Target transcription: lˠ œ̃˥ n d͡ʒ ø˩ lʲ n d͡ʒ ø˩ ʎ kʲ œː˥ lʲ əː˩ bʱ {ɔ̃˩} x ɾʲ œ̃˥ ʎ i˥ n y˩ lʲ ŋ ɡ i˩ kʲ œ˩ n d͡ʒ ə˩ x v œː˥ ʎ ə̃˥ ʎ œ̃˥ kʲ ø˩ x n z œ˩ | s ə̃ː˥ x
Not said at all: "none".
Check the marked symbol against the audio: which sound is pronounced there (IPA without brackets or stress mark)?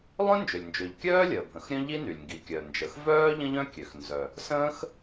ə̃˩